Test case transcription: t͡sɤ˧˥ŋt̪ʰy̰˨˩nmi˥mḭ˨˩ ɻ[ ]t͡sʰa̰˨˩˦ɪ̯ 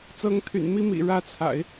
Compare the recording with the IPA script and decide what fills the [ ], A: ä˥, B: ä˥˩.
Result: B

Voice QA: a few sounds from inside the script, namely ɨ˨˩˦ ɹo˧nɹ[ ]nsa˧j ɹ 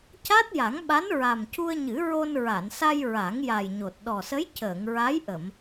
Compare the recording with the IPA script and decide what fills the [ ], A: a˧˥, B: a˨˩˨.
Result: B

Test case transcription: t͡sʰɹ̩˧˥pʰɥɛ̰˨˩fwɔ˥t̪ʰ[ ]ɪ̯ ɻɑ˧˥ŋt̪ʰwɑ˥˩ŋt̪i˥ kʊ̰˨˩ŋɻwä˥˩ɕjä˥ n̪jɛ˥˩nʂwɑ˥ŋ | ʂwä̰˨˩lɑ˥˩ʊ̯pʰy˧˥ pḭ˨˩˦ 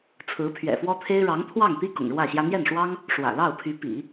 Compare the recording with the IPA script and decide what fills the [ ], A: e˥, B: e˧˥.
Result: A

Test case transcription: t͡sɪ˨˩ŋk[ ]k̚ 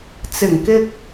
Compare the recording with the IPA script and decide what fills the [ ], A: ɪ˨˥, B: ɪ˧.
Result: B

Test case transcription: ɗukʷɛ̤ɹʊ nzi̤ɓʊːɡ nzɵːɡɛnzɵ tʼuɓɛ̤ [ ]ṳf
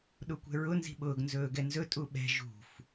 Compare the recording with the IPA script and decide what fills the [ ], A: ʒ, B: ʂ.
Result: A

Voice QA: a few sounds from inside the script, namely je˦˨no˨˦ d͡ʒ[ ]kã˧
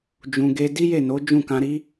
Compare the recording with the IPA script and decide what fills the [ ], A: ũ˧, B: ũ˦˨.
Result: B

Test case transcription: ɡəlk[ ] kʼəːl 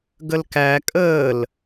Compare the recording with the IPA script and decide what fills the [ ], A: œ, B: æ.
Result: B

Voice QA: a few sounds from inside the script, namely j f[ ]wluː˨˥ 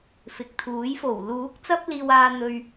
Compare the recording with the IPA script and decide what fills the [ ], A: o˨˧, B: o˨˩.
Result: B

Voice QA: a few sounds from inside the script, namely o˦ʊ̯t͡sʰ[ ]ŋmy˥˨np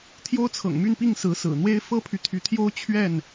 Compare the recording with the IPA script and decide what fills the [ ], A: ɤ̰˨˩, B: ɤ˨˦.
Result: A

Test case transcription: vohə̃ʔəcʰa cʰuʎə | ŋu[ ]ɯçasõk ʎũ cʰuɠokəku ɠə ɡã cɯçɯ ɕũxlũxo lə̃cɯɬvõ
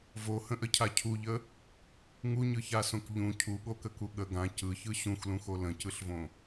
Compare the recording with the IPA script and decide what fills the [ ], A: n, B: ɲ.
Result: B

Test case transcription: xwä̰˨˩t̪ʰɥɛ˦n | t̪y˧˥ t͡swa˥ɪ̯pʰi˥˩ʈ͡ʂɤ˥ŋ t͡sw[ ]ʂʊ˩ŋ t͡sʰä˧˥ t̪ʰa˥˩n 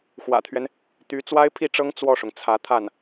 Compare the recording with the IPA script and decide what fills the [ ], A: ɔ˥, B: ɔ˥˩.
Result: B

